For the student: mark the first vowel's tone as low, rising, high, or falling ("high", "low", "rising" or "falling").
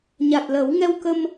low